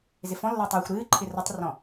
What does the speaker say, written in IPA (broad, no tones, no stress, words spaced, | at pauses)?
zɪfɔ̃lːɐː tˤɨːxʷ ɾɨːǃʰɪ rɐtˤrɔ̃